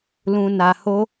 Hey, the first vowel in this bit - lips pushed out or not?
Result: yes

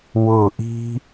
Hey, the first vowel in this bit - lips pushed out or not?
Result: yes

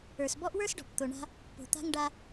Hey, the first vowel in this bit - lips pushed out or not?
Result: no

